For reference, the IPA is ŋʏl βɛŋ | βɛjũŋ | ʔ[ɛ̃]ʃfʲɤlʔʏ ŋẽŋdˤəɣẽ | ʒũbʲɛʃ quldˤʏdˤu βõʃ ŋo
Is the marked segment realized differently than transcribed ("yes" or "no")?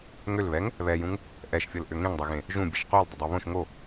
yes